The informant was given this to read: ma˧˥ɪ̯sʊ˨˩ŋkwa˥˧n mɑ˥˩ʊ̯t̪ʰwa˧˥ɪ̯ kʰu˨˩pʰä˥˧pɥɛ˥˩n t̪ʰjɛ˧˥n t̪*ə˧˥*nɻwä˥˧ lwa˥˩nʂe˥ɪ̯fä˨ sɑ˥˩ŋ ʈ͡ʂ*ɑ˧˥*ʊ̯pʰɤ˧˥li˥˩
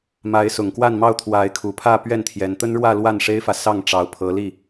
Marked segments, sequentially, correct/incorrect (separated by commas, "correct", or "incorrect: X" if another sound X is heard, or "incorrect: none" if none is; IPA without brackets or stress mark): incorrect: ə˥, correct